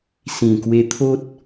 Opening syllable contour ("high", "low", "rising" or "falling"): low